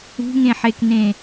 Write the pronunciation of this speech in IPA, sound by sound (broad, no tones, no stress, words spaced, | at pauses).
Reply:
ṳŋẽħeknẽ